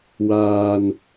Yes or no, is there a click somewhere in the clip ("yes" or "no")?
no